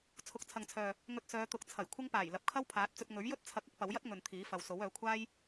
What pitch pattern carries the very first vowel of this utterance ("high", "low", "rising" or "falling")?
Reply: low